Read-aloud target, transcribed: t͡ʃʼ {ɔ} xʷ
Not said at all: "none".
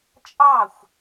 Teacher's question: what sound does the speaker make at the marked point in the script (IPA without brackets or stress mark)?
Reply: ɑ